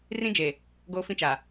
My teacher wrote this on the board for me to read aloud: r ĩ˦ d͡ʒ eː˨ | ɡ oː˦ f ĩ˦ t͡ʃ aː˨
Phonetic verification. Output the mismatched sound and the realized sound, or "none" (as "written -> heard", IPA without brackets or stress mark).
none